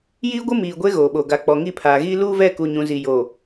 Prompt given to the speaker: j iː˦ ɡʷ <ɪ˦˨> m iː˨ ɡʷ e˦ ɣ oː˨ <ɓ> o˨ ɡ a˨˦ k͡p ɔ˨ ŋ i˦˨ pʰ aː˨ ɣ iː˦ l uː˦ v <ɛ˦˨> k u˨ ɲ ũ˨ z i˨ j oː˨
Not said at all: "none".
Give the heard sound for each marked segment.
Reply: ɪ˦, ɓ, ɛ˦˨

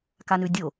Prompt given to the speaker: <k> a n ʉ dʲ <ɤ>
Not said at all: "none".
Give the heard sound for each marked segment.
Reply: k, o

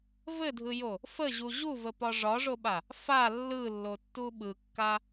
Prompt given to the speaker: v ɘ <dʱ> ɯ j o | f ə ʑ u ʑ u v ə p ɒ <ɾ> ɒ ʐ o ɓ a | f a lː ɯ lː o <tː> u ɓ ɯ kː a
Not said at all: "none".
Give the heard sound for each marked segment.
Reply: dʱ, ʐ, tː

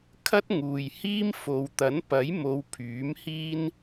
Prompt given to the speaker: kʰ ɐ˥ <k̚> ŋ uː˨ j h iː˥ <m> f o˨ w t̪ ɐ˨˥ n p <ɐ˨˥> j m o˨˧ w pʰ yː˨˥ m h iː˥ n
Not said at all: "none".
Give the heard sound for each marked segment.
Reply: t̚, m, ɐ˨˥

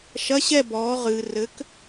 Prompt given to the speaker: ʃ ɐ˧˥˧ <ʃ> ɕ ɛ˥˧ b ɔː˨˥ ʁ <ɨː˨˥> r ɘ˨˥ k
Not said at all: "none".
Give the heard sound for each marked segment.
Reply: none, ɨː˨

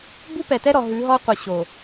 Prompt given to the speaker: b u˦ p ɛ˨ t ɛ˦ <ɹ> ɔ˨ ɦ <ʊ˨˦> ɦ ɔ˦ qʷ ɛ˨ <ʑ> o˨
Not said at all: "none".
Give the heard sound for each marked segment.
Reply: ɾ, ʉ˨˦, ɕ

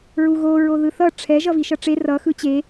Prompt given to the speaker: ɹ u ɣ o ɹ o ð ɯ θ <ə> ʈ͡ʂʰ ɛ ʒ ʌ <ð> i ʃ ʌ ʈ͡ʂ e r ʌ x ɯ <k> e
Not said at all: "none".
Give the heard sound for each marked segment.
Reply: ʌ, v, t͡ɕ

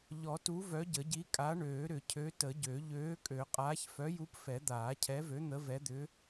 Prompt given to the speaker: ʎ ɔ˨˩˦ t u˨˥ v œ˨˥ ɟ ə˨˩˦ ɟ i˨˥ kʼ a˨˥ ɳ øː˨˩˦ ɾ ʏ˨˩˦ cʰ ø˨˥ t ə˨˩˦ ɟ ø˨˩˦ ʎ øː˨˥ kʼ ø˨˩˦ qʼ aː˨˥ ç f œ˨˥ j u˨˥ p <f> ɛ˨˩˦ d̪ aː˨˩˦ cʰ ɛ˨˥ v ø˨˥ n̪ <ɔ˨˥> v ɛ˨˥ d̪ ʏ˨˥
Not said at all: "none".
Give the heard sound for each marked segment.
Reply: f, ə˨˥

